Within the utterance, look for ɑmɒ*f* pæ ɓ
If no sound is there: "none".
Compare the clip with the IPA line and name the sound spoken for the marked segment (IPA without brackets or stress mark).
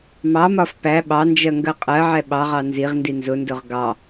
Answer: f